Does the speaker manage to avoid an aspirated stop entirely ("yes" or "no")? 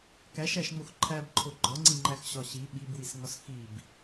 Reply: no